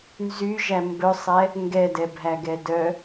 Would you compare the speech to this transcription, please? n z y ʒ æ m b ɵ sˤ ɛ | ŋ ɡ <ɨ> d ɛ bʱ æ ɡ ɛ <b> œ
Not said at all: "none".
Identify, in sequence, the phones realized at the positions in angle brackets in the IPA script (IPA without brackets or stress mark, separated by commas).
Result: ɛ, d